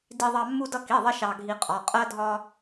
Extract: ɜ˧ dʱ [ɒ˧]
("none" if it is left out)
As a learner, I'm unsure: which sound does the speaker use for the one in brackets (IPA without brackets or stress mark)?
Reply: ɒ˧